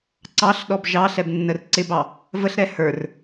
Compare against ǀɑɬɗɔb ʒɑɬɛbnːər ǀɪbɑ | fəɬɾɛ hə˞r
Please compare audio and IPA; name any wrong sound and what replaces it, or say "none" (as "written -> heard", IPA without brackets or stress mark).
f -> v